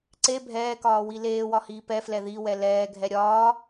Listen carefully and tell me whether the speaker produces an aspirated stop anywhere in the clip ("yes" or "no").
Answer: no